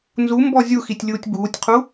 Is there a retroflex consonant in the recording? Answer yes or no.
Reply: no